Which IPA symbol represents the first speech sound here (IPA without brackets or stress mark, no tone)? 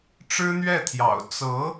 ʈ͡ʂ